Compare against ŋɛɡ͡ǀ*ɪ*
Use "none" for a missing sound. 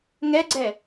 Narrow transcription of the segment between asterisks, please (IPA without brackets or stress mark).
ɛ